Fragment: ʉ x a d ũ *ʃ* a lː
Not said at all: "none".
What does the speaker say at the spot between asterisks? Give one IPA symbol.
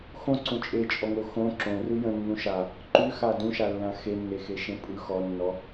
ʃ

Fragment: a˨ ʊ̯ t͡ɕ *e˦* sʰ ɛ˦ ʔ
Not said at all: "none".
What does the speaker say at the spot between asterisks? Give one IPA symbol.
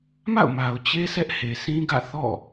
e˦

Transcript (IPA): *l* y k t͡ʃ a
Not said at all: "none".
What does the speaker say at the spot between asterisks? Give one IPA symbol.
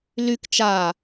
l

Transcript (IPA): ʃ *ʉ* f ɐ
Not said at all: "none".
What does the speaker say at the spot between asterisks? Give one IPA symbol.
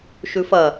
ʉ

